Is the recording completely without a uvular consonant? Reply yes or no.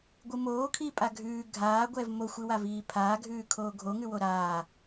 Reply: yes